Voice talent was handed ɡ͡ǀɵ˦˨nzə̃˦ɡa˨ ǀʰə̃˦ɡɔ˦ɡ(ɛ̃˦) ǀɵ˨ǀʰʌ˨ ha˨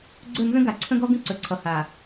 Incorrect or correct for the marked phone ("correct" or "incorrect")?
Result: incorrect